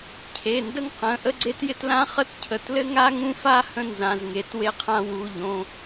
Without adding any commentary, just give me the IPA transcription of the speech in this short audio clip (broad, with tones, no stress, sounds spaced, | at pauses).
cʰ e˩˧˩ n d ə˥ ŋ q ə̃˩˧˩ ʔ ə˥ ɡ͡ǀ e˥ t j ɪ˥ t l ã˥ χ ə˥ t cʰ ə˩˧˩ t l ɘ˥ ŋ a˥ ŋ ũ˥ f a˥ h ə̃˥ n z ã˩˧˩ z ŋ e˩˧˩ t w e˥ qʰ ã˥ w u˩˧˩ ʎ õ˩˧˩